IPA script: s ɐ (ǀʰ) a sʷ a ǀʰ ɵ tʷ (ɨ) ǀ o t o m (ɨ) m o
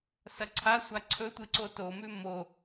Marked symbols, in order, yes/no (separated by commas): yes, yes, no